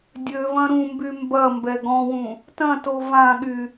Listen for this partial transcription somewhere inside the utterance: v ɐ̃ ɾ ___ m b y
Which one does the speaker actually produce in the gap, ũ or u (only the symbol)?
ũ